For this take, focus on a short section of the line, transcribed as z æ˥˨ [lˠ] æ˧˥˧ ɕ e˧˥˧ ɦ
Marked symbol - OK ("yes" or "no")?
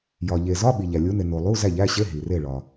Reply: no